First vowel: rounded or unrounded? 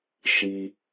unrounded